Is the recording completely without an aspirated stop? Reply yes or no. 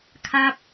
no